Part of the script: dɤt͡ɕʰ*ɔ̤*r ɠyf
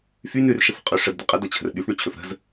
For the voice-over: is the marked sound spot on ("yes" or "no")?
no